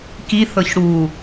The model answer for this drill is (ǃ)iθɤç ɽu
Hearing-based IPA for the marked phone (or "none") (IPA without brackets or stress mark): k